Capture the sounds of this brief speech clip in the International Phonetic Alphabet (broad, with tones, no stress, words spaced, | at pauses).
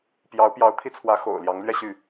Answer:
pjɑ˧˥ʊ̯ pjɑ˧˥ʊ̯t̪ʰi˥˩ t͡sʰwä˧˥xo̰˨˩ʊ̯ ljɑ˧˥ŋlɥɛ˥˧ɕy˥˩